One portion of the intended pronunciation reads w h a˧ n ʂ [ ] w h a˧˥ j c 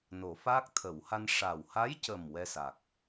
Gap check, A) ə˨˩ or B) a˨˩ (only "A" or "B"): B